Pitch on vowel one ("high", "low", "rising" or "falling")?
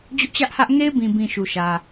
high